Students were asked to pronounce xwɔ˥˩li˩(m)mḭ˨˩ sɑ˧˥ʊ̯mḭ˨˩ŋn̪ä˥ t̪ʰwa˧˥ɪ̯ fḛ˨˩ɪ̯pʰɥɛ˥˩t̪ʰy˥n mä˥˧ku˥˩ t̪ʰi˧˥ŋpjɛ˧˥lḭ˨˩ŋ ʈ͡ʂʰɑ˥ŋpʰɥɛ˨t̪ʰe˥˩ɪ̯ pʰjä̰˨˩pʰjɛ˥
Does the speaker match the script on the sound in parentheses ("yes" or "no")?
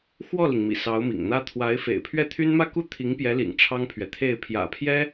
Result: no